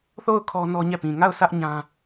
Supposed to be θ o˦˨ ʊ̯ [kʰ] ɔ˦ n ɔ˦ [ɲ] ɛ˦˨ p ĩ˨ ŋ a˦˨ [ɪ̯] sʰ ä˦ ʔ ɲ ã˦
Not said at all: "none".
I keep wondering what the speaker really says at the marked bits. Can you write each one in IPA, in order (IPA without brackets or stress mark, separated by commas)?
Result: kʰ, ɲ, ʊ̯